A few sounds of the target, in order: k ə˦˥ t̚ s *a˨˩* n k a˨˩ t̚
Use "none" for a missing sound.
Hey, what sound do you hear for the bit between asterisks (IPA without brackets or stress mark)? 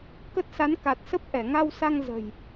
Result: a˨˦